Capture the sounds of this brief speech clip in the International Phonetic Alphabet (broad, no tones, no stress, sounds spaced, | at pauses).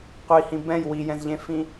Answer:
qʷ i h ĩ b ɛ̃ j w i j ɛ̃ z ʎ ẽ f ĩ